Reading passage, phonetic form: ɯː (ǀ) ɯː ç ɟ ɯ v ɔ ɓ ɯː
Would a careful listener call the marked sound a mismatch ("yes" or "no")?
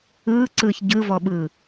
no